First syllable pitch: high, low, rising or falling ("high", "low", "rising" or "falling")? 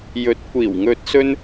rising